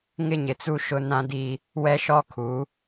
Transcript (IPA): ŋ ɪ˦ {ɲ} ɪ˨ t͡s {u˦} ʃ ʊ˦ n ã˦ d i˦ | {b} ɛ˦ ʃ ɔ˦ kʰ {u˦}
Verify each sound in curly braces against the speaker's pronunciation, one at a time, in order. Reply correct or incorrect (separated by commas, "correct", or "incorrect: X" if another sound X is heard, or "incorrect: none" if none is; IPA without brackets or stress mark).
correct, correct, incorrect: w, incorrect: u˨˦